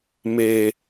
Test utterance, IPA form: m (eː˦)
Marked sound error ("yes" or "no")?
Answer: no